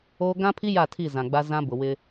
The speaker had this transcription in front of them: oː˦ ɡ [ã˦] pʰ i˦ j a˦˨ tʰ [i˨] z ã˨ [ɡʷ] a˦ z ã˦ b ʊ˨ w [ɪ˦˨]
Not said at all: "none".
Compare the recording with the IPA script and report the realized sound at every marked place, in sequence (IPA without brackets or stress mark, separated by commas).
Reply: ã˦, i˦˨, ɡ͡b, ɪ˦